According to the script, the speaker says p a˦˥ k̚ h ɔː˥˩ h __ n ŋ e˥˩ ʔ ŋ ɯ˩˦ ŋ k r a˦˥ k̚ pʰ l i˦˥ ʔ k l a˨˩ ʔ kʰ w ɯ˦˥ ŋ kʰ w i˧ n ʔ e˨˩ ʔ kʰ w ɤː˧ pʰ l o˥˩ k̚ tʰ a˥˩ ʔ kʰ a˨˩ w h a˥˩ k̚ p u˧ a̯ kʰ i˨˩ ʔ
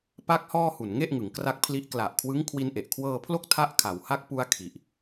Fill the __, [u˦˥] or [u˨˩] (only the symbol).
u˨˩